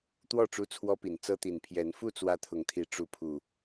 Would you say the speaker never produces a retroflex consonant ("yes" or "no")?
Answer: no